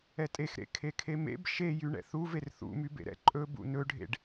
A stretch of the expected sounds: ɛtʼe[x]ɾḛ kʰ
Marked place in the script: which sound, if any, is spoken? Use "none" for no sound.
x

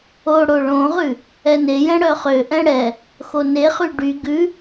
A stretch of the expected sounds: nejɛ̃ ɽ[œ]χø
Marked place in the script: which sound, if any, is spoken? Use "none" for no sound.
œ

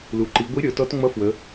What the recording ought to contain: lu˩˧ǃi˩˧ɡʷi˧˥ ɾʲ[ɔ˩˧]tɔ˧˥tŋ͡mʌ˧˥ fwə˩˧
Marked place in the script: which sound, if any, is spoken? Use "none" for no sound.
ɔ˩˧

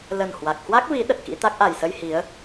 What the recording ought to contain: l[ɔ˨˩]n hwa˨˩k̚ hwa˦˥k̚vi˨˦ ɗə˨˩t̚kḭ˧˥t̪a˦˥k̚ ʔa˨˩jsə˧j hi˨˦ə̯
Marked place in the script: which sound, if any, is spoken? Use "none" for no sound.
ə˨˩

